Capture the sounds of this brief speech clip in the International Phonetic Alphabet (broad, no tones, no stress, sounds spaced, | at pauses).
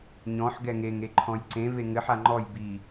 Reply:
ɲ ɔ̃ ħ ɡ ɛ ŋ e ŋ e ǃʰ ɔ̃ j ǀ ẽ v e ŋ ɘ ħ a ŋ͡ǃ ɔ j b i